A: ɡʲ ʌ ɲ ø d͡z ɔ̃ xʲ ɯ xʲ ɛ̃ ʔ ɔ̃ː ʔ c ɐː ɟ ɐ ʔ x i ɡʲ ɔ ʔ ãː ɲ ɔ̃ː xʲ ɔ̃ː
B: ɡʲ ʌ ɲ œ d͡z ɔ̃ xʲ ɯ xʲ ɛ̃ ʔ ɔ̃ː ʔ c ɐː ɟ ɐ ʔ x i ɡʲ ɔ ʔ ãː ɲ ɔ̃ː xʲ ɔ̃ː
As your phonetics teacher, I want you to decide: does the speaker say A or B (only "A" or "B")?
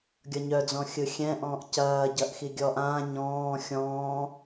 B